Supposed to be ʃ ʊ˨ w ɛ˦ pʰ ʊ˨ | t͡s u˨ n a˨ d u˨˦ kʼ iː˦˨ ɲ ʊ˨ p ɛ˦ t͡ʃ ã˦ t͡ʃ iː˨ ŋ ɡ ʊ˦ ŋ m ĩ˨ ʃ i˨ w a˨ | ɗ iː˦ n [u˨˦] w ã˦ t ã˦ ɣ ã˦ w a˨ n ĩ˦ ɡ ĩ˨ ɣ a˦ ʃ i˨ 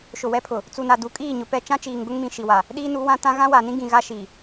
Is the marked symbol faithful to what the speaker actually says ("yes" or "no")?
yes